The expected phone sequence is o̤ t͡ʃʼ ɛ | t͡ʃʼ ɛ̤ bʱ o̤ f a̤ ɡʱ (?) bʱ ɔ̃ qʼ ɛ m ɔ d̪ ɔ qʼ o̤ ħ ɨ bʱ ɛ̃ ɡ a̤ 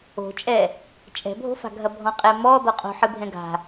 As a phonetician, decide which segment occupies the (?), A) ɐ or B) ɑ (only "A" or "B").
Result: A